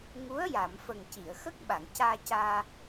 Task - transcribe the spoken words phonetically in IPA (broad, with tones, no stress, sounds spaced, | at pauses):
ŋ u˧˥ ə̯ j a˨˩˨ m f ə˨˩ ŋ c i˨˩˨ ə̯ x ə˦˥ k̚ ɓ a˨˩˨ ŋ c aː˧ c aː˧